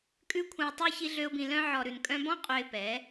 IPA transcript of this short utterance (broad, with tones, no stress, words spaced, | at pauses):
kʼʉ˦ kʷʰœ̃˧ə̯tˤʉ˦ çi˦ɮø˦ʊ̯bĩ˧ lœ̃˦ ʕɔ˨ɾʉ˨nkʼœ̃˧bɔ̃˦ qʼø˧ɪ̯pɛ˨˦